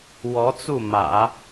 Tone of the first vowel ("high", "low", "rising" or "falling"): rising